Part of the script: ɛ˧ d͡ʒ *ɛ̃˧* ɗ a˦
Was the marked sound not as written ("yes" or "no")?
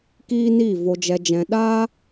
no